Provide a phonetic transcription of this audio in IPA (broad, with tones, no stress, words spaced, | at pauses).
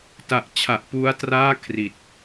ta˨˩ʔt͡ɕʰa˨˩ʔ pu˦˥a̯traː˥˩ kʰri˨˩t̚